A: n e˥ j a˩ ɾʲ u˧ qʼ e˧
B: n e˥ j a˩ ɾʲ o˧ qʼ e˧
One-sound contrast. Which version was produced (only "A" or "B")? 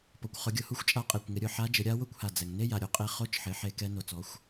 B